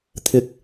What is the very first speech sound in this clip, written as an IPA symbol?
t̪ʰ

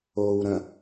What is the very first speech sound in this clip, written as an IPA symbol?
oː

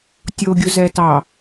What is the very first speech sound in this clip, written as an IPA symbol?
tʲ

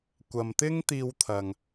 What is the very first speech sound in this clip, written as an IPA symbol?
kʷ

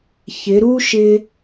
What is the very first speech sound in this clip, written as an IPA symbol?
ç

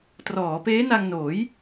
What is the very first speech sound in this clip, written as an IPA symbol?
t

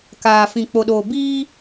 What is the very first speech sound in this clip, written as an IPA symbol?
k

